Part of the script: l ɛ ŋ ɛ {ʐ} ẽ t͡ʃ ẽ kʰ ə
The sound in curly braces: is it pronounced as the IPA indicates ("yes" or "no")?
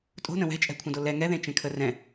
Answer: no